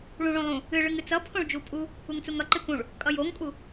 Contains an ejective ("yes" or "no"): yes